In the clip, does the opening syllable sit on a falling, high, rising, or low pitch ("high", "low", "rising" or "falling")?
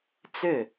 falling